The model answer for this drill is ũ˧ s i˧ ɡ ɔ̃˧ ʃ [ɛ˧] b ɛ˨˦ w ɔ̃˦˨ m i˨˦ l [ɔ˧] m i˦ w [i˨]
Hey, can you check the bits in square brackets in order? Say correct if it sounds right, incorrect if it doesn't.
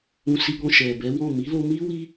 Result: incorrect: ɛ˨, incorrect: o˧, incorrect: i˦

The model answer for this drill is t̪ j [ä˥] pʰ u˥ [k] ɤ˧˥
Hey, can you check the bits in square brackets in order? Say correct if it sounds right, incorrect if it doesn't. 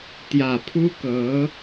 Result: incorrect: ä˨˩, correct

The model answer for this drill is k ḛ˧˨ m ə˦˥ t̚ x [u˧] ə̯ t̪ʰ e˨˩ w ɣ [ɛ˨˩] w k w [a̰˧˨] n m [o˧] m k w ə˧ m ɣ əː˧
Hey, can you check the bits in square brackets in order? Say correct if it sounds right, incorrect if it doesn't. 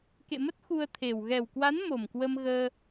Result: correct, correct, incorrect: a˨˦, incorrect: o˨˩

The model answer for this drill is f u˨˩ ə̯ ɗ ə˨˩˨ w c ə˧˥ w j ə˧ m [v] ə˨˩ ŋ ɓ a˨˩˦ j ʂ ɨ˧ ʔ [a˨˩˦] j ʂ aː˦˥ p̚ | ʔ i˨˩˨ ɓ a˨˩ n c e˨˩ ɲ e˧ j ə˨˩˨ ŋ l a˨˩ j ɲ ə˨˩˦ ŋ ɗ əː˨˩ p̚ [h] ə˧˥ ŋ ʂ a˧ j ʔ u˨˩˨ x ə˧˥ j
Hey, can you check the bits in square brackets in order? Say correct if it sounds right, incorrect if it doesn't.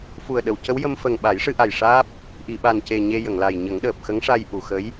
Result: incorrect: f, incorrect: a˨˩, incorrect: x

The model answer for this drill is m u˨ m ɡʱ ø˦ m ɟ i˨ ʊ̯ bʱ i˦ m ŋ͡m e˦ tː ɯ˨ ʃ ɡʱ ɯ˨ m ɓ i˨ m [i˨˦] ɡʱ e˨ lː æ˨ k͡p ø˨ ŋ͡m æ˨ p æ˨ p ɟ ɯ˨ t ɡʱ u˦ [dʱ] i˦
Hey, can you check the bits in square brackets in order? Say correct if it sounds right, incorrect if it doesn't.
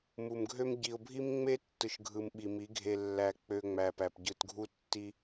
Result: correct, incorrect: tː

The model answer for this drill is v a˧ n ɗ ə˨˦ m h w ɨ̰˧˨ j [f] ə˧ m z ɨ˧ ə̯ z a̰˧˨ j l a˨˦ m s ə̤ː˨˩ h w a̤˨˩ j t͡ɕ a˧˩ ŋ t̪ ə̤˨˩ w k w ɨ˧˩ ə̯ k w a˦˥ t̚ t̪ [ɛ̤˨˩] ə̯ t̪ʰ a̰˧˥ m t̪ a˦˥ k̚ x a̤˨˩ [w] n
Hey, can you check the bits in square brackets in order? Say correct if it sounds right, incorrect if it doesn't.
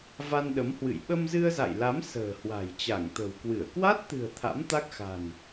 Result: incorrect: ɓ, incorrect: ɨ̤˨˩, incorrect: none

